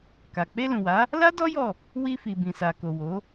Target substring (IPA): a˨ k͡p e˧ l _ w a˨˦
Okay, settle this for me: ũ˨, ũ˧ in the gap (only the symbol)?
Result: ũ˨